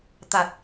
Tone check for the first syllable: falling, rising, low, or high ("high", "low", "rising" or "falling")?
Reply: low